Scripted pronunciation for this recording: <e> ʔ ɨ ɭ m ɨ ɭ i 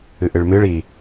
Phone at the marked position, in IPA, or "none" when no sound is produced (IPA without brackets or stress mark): ɨ